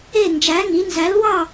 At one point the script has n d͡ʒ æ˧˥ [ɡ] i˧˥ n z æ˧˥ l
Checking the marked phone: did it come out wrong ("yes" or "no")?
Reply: yes